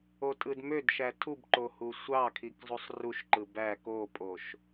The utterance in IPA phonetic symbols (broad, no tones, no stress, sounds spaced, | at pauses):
o tʼ ɯ d m ø d ʃ æ tʰ u b ǃ o h u sʷ ɑ kʰ i k zˤ u sˤ r u ʃ ǃ ɯ b æ k o pʼ o ʃ